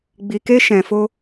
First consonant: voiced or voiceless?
voiced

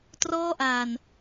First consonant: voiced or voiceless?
voiceless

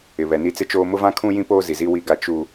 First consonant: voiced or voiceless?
voiced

